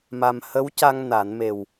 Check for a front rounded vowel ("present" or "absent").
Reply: absent